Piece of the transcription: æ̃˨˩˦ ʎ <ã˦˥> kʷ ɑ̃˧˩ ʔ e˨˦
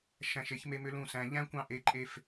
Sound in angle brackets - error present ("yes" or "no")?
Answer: yes